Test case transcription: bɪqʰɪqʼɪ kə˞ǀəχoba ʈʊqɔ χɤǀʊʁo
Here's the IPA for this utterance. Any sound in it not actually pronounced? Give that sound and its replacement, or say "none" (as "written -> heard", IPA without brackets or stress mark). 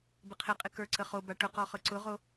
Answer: none